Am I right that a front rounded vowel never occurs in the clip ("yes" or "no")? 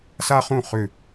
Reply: no